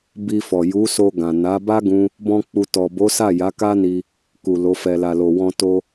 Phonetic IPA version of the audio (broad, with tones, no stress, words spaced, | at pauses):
bi˧fɔ˨ ju˨˦so˧ɡã˨ na˨˦ba˦ ɡũ˦ | bɔ̃˦k͡pu˧ tɔ˨ bo˨˦sa˦˨ ja˨˦ka˦ni˧ | ku˨lo˨˦fɛ˧ la˨lo˨wɔ̃˧ to˦